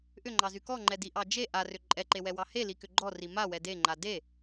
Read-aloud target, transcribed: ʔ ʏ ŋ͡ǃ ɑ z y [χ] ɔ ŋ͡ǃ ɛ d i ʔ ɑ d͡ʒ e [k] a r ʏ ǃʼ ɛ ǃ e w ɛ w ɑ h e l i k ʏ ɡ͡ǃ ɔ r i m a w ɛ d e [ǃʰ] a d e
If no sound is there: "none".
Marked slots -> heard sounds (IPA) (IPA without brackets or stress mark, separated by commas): k, ʔ, ŋ͡ǃ